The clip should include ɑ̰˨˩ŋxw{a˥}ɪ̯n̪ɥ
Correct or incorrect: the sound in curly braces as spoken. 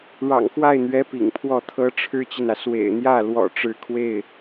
incorrect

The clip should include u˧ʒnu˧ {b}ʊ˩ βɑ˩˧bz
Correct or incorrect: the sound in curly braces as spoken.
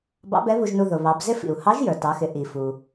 incorrect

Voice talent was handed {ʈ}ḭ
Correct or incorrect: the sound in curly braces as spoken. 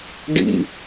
incorrect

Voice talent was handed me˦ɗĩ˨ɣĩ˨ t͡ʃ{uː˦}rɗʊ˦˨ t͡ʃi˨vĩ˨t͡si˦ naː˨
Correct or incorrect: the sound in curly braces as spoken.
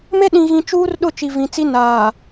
correct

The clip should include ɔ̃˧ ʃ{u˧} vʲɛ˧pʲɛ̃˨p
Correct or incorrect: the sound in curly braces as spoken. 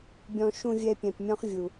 incorrect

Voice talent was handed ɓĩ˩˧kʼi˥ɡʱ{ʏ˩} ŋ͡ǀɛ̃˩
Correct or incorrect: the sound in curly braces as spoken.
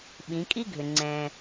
correct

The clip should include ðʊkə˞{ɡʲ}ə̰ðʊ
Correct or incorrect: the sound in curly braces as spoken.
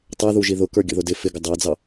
correct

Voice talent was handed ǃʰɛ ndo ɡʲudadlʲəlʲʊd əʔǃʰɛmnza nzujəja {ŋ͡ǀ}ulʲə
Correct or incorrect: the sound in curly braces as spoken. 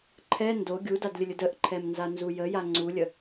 correct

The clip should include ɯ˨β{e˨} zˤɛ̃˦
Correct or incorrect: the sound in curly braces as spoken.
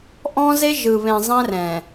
incorrect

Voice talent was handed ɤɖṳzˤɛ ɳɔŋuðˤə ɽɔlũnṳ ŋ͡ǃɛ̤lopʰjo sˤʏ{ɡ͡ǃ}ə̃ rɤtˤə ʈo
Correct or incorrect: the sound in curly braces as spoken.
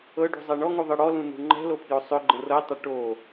correct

